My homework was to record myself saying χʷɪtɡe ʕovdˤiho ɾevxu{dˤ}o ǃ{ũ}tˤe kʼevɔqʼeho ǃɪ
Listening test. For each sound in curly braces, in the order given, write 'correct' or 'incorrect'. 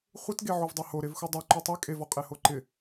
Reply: correct, incorrect

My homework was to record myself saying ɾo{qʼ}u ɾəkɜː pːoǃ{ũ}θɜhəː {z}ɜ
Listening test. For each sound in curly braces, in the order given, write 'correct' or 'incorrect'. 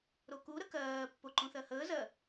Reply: incorrect, correct, correct

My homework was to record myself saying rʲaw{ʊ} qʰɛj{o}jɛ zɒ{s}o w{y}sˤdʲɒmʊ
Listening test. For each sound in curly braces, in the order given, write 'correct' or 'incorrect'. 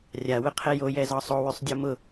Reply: correct, correct, incorrect, correct

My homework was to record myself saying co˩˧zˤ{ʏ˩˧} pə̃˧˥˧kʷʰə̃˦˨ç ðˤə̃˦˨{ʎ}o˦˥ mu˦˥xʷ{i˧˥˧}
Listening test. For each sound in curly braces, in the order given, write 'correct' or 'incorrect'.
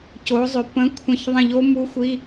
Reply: correct, correct, correct

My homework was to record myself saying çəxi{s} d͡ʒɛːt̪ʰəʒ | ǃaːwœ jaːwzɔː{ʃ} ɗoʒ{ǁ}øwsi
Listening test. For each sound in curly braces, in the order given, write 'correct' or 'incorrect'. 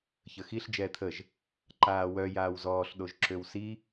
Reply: incorrect, incorrect, correct

